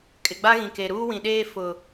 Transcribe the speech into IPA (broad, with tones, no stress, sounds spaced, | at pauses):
kʼ ɪ˨ ɡ͡b a˦ ɣ ĩ˨ k e˨ ɾ uː˦ w ĩ˨ ɗ eː˦ f ʊ˨